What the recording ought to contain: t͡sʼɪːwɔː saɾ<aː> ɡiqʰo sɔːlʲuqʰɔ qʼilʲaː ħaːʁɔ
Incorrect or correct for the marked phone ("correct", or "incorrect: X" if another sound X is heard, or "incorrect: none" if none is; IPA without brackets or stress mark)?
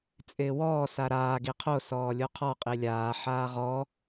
correct